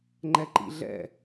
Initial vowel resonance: oral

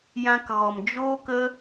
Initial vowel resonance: nasal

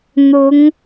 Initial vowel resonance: oral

